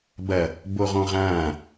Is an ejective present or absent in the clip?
absent